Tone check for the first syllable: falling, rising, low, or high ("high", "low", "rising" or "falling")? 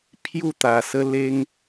falling